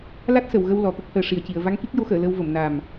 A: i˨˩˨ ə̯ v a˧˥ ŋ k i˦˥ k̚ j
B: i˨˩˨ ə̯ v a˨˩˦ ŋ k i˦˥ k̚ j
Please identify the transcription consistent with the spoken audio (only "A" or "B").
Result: A